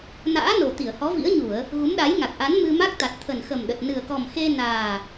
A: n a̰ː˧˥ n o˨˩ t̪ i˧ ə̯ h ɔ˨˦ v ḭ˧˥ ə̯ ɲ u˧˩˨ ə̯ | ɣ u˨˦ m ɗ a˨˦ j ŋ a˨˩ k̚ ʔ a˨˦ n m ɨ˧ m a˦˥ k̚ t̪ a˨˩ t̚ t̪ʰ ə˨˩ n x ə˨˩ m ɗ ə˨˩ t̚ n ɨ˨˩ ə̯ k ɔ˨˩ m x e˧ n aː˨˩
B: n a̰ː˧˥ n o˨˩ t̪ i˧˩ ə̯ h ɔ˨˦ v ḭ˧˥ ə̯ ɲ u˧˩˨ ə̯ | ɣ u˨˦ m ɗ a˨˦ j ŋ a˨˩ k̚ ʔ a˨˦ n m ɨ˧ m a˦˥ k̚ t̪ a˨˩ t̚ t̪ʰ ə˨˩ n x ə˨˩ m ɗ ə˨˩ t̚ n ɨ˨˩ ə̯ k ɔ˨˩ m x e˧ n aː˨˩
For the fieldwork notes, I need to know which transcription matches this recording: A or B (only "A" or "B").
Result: B